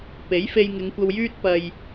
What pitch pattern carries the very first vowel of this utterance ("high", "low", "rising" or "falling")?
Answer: rising